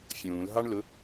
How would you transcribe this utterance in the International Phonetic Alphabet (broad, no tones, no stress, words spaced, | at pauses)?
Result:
fʲũːlɦɑɳlʊ